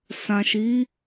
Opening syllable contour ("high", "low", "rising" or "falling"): low